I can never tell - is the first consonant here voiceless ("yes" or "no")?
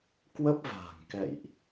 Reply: yes